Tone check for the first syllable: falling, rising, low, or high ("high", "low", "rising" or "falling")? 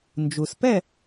low